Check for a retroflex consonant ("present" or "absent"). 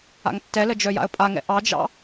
absent